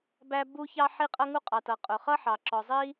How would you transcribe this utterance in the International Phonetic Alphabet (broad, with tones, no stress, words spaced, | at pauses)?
bæ˥ bu˥çɑ˥ ħi˥qʼʌ˥ŋu˥ qʼɑ˩tʌ˩ qʼʊ˩χʌ˥ħɑ˩ ǁɔ˩zˤi˥